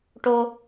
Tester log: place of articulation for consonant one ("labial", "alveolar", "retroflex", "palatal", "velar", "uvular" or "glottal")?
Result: retroflex